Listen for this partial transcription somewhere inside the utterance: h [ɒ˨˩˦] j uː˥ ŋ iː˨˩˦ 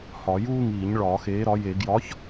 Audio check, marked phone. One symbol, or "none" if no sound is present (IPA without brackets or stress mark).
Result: ɒ˨˩˦